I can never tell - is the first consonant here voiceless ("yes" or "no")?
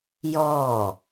no